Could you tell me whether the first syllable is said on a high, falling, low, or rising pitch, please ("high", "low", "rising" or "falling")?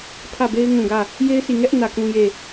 falling